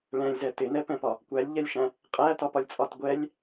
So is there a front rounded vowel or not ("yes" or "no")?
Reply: no